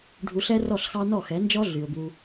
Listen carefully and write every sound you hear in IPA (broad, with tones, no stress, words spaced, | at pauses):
ɖʱu˧ɬɛ˦rɔ˦˨ɬxɑ˦ nɔ˦˨xɛ˨˦nd͡ʒɔ˦ ɮy˨ʊ̯bu˧